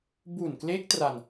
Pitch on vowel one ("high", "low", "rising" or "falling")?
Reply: low